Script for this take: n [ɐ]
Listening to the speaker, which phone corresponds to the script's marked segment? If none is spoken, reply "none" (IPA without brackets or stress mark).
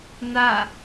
a